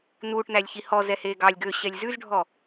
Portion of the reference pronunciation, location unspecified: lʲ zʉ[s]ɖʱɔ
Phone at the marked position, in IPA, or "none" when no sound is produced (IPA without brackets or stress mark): z